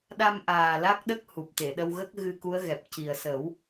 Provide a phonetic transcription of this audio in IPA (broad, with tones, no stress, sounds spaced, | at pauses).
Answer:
ɗ a˧ m ʔ aː˨˩ l a˦˥ k̚ ɗ ə˦˥ k̚ h u˨˩ p̚ t̪ e˨˩˨ ɗ ə˧ w ɣ ə˦˥ k̚ ɣ ɨ˧ k u˧˥ ə̯ ɣ ɛ˨˩ p̚ c i˨˩ ə̯ s ə˨˩˦ w